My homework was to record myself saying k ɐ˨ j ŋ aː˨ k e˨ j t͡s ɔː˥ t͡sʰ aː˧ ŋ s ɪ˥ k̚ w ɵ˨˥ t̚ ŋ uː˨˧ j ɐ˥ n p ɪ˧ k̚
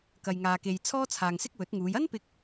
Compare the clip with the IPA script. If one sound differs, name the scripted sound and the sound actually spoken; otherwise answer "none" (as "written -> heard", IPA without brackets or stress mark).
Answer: t͡s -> t͡sʰ